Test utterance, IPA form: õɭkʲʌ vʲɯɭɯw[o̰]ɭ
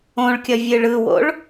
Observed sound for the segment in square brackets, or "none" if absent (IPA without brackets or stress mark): o̰